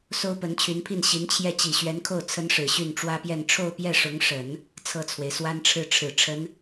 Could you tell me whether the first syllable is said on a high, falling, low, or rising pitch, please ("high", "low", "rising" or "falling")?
high